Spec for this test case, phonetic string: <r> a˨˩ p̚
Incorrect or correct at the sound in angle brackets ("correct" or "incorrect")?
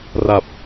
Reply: correct